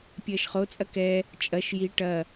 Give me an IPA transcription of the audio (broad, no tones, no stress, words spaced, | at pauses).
pʲɐːʃχo t͡sʼɐkɛ | t͡ʃʼɐʃ ji ʈɐ